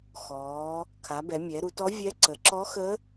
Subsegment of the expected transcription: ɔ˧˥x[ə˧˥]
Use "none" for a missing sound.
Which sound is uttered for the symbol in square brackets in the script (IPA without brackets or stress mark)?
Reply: ə˧˥